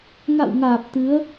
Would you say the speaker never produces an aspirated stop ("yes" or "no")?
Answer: yes